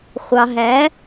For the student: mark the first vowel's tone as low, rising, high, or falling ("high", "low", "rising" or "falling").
low